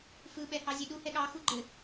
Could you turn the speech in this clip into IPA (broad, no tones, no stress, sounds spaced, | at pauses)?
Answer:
f ɯ ɓ ɛ h ɑ zʲ e ɗ u h ɛ ɠ ɑ x u ɡ͡ǃ ɘ